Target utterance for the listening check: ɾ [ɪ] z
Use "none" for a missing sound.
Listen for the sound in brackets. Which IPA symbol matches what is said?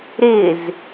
ɪ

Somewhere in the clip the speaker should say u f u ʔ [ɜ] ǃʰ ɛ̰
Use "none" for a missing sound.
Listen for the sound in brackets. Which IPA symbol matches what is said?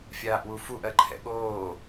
ɜ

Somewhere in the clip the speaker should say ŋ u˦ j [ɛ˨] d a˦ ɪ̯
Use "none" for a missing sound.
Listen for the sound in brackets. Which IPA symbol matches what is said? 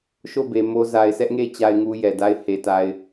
ɛ˨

